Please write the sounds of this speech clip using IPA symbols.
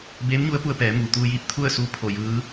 beː˧˥mɲu˧˥ə̯pu˧ə̯ pɛː˩˧muː˩t̪uː˧jiː˧p̚ t̪ʰu˥˨ə̯suː˧˥ pʰo˧˩jɯː˧˥

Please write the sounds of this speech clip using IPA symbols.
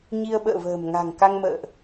ɲi˧ə̯ɓə̰ː˧˨və̤ː˨˩m ŋa̤˨˩ŋka˧ŋmə̰ː˧˨ʔ

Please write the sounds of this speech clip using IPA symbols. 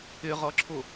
ɪʁʌǁʰʊ

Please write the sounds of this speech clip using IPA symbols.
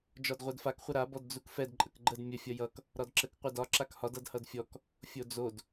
d͡ʒɒdʁʷɛdfak χʷəɾa bɔdd͡zukfɛd ǃʼəkɡ͡ǃəd mʲə fʲʌjʌk | ɾɒdǁək qʷɛdɒ ǁakhɒd ʌdhʌdfʲɔk | fʲod͡zod

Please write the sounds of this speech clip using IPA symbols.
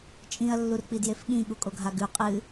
t͡ʃʼĩɐ̯lːurk͡pi djefɠĩ ɠukʼoɡʱaɡʉ qʼɨ

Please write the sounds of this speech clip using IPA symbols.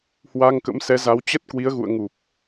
hwa˧ŋkə̰˧˥msɛ˨˦za˨˦w t͡ɕə˦˥t̚ kwi˨˦ə̯ɣṵ˧˨ə̯ŋu˨˩p̚

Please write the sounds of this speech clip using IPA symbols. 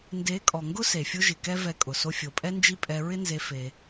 nde˨˦kʼɔ˨ŋɡʊ˦ se˨fʲʊ˦ʒɪ˨kɛ˦ vɛ˧kʼʊ˨ so˧fʲo˨pʼɛ˦nd͡ʒi˦ pʼɛ˧ɹɪ˦nze˧ fe˧

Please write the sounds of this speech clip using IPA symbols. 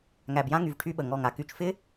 ŋæ˨bjã˦ŋy˨v ʈʰy˦ɓə˨ŋɔ˦˨ŋa˨ ky˨t͡ʃfɪ˦

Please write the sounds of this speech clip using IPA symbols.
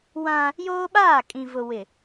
wã˦ | joː˦ɓaː˦˨kʼĩ˨vʊ˨ wɪ˨

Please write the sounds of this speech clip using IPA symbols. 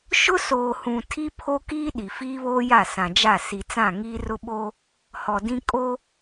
ʃʊ˦soː˨hũ˨ tʰi˦pʰo˦kiː˦ ɗi˨fiː˦βoː˦ja˦˨ sã˨d͡ʒa˦˨ si˨t͡sã˦˨ ŋiː˦rʊ˦ɓoː˦ | hɔ˨dĩ˦ kʼo˦

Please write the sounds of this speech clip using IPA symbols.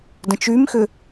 də̃t͡ʃymxʏ

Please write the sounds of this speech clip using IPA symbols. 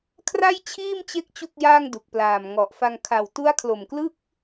kʰra˥˩jt͡ɕʰiː˥˩mt͡ɕe˦˥k̚ t͡ɕu˥˩k̚jaː˥˩ŋdu˨˩k̚ plaː˨˩mŋɔ˨˩ʔfa˧ŋ kʰa˨˩w tu˦˥a̯kʰlo˨˩mklɯ˥˩k̚

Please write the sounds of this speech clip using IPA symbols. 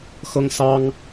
xɤ˥ŋsɑ˥ŋ

